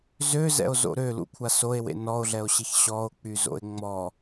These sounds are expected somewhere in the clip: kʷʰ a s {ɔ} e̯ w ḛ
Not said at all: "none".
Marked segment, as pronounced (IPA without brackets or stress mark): o